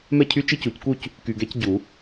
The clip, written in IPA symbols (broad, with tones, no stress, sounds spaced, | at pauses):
m ɛ˥˩ cʰ y˦˥ t͡ʃ i˦˥ c u˨˩˦ c k u˥˧ c | k y˨ ɡ ɛ˦˥ c ɟ u˨˩˦